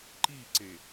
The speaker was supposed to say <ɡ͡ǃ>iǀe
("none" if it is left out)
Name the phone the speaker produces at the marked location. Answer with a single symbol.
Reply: ǃ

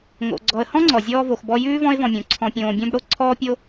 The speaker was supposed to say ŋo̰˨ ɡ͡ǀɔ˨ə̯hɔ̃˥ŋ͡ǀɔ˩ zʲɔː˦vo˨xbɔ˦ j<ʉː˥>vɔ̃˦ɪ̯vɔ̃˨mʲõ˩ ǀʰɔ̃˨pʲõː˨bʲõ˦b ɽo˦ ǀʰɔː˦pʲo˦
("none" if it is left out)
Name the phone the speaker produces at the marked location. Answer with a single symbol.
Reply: ʉː˥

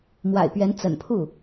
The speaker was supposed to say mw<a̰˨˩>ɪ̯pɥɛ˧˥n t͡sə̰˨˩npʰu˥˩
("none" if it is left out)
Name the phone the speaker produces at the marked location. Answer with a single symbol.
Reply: a̰˨˩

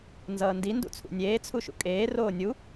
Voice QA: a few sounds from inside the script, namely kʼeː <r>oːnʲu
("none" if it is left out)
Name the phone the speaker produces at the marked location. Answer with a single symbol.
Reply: r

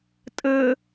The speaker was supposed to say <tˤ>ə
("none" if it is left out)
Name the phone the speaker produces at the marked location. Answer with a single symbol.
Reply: tʼ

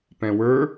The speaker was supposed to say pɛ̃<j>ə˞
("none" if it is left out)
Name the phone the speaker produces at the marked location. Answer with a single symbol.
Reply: w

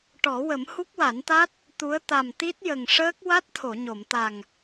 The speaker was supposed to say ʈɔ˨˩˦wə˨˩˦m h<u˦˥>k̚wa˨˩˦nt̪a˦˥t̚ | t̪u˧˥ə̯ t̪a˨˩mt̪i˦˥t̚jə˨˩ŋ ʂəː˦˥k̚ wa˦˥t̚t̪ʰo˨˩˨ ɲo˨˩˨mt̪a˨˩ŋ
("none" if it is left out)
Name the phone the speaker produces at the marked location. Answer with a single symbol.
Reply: u˦˥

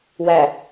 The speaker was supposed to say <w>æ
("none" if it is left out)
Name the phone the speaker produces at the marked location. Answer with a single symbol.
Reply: w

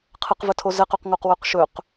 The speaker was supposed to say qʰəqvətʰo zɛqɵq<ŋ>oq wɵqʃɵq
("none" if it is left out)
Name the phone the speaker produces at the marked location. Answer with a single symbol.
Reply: ŋ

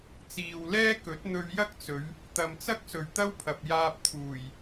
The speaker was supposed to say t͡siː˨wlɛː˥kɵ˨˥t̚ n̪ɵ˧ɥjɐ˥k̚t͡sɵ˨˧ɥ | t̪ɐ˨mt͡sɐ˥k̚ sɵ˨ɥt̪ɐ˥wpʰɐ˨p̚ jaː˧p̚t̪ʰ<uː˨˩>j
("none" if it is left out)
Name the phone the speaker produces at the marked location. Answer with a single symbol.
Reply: uː˨˩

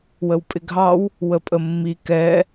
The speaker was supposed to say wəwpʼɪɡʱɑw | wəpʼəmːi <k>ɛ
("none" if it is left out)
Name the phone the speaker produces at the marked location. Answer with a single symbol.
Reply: k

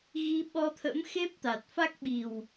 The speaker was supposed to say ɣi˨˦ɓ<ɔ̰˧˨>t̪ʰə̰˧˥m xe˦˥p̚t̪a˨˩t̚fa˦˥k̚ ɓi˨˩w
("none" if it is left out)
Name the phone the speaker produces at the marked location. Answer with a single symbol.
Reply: ɔ˧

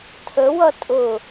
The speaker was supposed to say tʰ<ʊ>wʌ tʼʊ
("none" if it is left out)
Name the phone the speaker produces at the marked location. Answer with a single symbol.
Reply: ə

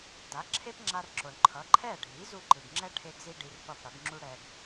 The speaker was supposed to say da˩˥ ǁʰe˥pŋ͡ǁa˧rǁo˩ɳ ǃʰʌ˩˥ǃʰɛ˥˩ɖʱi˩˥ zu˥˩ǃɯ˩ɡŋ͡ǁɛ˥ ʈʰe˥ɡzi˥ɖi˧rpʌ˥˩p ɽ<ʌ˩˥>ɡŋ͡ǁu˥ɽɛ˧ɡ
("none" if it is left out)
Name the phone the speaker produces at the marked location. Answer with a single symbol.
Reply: ʌ˩˥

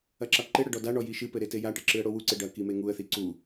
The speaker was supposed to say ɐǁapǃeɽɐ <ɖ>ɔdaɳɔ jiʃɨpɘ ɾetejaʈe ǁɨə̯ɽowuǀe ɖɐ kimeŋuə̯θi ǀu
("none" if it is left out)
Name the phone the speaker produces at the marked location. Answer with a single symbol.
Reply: ɖ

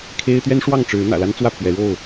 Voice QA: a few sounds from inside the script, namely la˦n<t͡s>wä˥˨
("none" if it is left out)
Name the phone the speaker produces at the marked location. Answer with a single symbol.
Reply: t͡s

